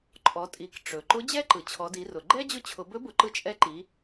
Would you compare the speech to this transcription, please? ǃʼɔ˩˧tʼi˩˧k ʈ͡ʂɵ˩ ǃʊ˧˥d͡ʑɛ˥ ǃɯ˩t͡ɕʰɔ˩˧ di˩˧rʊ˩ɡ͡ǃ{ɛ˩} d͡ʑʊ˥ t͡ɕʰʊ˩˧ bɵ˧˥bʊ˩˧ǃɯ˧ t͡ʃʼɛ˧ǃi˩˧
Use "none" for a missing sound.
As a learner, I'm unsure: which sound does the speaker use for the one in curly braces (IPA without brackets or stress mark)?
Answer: ɛ˥